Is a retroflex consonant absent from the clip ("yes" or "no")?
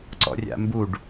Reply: no